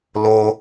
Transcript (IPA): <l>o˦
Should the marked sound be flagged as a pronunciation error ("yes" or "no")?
no